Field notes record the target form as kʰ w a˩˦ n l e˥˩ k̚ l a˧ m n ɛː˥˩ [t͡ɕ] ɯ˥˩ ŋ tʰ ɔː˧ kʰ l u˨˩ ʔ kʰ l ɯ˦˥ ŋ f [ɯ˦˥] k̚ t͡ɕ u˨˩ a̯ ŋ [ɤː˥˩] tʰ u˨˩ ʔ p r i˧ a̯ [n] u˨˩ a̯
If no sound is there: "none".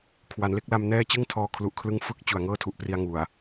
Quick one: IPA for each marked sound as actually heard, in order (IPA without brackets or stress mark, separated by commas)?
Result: t͡ɕ, ɯ˦˥, ɤː˥˩, ŋ